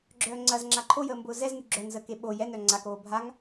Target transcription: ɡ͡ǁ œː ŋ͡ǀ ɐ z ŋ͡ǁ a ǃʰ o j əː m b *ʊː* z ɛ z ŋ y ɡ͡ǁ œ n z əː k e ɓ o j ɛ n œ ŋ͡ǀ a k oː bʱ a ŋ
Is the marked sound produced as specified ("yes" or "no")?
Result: yes